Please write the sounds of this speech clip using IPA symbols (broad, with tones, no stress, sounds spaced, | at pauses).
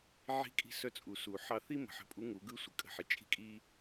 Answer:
ʕ i̤˧˥ kʼ i̤˧ s œ˧ t͡sʼ u˩ s u˩ ħ ɑ˧ θ i˥ m ə̤˩ ħ ə̤˧˥ pʼ u˧˥ ŋ u˩˧ ɡ ɯ˥ sʷ ə˩ kʼ ə̤˧ ħ ɪ˩˧ t͡ʃʼ i̤˥ kʼ i˥